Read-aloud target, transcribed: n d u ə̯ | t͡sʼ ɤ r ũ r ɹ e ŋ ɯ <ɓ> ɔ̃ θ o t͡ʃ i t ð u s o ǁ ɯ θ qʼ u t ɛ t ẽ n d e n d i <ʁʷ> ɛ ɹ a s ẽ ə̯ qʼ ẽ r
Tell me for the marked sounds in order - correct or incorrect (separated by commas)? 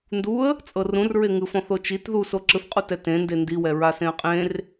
incorrect, incorrect